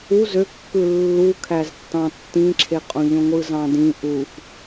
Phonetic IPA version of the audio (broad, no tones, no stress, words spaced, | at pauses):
u zøkːɯ lːukʰæztːɑ̃ tːĩǁʰeqʼõ ʎõŋʷɯzɑ̃dĩ ʔuf